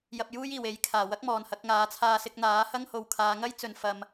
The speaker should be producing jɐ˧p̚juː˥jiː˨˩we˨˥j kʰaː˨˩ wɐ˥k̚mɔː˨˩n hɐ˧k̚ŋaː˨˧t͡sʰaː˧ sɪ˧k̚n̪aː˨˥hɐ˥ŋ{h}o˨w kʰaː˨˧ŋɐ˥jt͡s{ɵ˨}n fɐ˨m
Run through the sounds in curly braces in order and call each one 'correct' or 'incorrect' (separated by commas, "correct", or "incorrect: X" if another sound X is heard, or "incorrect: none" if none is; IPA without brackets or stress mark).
correct, correct